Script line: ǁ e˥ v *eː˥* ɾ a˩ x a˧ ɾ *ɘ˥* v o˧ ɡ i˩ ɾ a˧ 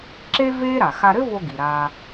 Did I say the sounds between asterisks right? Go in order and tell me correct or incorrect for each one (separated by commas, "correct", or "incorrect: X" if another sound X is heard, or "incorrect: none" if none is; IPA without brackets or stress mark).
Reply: correct, correct